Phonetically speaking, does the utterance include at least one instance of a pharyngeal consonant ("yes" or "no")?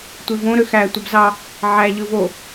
yes